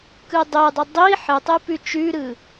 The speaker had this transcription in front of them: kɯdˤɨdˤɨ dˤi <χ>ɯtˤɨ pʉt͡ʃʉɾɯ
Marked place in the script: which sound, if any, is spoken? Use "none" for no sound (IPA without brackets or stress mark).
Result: ħ